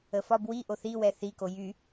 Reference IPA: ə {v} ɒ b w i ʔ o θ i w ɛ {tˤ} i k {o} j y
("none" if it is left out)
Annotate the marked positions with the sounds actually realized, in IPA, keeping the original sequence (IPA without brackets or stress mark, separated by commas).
f, θ, o